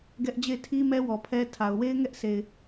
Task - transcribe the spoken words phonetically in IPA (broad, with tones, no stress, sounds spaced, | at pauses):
ɡ ɛ˦ ʔ d͡ʑ e˦˨ ɪ̯ tʰ i˦ m ɛ˦ w ɔ˨ pʰ ɛ˦ tʰ a˨ ʊ̯ w e˦ ɪ̯ ŋ ɛ˦ ʔ s e˨ ɪ̯